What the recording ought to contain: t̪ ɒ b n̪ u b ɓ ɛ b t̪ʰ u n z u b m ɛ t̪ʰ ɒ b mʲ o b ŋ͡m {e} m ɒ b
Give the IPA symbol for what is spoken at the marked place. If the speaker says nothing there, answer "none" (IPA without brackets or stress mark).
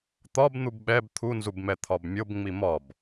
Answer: i